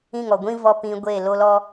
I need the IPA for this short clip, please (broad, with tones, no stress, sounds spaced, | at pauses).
ĩ˦˨ ŋ ɔ˨ ɡʷ ĩ˦ v ɔ˧ p ĩ˧ ɡʷ e˦˨ l o˦ l ɔ˦